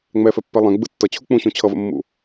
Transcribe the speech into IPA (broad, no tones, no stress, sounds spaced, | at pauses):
ŋ͡m ɛ f ɛ pː ɛ lˠ ɛ̃ ɡ͡b ɯ tː ʌ t͡ɕʰ u k͡p ũ ɕ ũ t͡ɕʰ ʌ v ə̰ mː ṵ